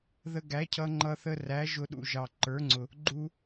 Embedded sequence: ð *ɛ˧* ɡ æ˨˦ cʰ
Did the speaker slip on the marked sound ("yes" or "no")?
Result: yes